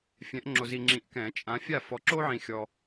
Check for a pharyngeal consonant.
present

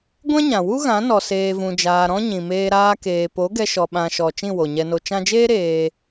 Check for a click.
absent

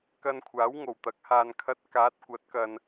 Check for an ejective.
absent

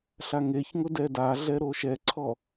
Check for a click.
present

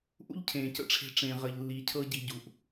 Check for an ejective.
absent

